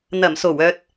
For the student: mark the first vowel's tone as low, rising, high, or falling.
low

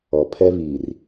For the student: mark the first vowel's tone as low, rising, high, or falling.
low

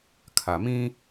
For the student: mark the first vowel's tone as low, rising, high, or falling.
low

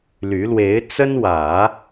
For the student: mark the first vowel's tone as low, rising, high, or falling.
rising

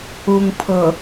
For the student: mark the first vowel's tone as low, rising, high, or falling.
low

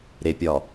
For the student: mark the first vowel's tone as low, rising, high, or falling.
low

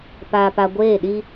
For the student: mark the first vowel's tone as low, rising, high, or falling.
low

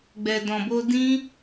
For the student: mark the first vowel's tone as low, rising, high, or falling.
low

